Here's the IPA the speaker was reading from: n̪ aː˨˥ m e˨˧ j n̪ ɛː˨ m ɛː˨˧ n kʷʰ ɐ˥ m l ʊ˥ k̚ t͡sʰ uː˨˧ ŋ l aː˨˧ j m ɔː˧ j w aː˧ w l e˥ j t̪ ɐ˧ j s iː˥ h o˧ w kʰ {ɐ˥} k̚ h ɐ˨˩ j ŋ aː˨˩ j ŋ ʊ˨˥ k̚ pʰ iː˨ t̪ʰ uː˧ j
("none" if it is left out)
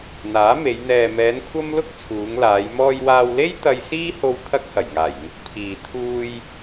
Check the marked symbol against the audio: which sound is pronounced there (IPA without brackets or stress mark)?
ɐ˥